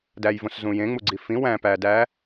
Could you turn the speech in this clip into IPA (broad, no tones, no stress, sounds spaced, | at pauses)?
d æ j v õ s z ũ j ẽ ŋ͡m u ɡ͡ǀ i f ĩ w æ̃ p æ d æ